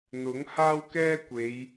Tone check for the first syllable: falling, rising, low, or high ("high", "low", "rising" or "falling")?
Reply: rising